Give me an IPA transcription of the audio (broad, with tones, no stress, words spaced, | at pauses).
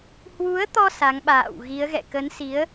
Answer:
hwu˨˦ə̯t̪ɔ˧ sa˨˦ŋɓa̰ː˧˨wɣi˨˦ə̯ɣɛ̰˧˨ kə˨˦n si˨˦ə̯